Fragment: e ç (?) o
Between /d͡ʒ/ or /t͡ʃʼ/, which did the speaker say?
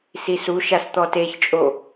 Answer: t͡ʃʼ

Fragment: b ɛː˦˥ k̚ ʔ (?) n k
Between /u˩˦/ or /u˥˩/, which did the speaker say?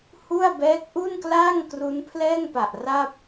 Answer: u˥˩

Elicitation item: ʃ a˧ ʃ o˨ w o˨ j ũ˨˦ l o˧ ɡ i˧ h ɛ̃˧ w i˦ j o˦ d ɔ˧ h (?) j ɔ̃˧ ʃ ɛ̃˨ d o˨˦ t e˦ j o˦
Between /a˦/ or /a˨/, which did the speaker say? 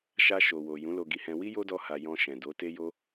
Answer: a˨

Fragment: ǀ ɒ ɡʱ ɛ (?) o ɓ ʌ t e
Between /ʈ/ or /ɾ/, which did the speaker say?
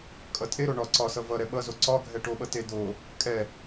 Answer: ʈ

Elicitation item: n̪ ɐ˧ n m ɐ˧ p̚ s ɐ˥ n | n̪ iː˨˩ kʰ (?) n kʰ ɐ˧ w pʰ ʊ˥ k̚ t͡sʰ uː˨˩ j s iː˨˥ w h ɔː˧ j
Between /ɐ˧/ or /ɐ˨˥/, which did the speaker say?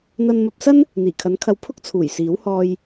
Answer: ɐ˨˥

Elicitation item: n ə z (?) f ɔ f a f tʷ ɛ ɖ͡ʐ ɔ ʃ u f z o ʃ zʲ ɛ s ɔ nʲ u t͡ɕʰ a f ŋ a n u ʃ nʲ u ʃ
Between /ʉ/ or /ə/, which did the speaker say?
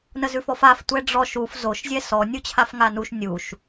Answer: ʉ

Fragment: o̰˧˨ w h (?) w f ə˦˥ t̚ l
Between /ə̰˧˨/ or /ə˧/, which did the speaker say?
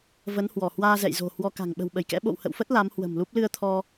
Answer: ə̰˧˨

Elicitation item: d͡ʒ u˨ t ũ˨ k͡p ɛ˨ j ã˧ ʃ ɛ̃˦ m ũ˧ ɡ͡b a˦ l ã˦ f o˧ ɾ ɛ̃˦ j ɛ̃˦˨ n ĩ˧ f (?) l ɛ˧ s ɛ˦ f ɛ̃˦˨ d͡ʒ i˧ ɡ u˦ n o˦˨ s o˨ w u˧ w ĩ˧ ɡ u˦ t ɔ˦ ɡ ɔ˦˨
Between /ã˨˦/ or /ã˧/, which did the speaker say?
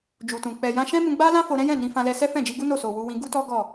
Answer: ã˧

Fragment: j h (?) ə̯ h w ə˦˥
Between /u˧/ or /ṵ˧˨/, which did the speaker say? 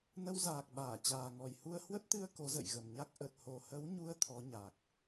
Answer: u˧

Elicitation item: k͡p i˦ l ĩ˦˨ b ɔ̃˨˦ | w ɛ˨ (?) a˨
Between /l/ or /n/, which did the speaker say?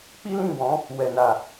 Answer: n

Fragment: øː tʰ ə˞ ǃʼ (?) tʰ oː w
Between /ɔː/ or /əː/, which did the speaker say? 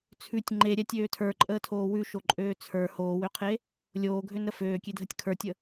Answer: əː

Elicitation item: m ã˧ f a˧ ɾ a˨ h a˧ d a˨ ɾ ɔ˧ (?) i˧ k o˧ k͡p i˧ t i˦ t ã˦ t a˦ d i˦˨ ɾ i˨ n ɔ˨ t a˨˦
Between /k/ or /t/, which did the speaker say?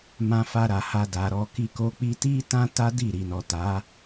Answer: k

